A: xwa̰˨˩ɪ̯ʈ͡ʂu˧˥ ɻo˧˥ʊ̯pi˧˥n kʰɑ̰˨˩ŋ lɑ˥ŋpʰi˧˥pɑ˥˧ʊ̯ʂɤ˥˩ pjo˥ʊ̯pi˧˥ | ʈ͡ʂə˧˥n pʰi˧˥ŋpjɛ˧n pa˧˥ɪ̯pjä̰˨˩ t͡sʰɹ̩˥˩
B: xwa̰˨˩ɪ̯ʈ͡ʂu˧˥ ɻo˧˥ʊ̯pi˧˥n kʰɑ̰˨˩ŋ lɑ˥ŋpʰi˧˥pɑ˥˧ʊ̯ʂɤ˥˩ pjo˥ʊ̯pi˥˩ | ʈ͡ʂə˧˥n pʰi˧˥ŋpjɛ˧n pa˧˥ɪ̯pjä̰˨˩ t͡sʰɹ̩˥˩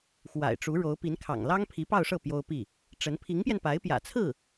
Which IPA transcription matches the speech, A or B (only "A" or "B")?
B